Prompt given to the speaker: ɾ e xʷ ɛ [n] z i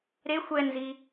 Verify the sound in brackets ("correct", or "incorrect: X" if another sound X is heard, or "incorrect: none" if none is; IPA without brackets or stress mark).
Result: correct